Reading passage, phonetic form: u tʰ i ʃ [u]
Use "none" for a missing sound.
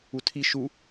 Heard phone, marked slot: u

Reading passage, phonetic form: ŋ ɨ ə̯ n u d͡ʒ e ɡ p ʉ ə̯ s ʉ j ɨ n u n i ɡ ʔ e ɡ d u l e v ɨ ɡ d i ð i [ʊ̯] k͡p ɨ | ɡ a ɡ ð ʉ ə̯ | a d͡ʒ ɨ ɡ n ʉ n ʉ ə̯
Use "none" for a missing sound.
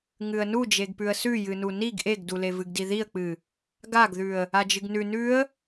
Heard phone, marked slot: ə̯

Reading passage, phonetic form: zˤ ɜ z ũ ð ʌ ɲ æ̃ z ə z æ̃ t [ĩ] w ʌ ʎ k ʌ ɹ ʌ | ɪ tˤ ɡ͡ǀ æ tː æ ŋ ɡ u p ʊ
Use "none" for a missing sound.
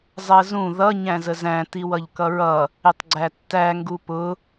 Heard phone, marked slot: i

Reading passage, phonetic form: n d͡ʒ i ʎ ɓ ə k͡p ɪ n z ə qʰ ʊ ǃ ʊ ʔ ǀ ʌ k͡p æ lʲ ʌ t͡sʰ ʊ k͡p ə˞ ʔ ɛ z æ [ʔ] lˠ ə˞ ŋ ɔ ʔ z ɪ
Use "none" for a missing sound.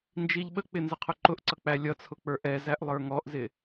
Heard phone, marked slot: ʔ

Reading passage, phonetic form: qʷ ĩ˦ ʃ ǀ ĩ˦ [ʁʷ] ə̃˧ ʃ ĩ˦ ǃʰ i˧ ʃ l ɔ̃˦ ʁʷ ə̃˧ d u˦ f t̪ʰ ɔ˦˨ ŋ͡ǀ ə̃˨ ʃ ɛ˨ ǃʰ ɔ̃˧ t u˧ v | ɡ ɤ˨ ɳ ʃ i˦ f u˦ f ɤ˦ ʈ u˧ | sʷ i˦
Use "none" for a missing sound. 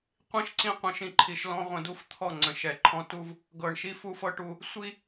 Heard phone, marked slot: qʷ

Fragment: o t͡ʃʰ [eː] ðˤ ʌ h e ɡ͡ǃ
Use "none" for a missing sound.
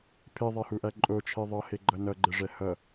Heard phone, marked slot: e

